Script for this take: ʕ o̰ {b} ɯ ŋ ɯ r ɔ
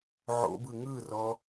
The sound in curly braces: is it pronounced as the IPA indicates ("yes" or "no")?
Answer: yes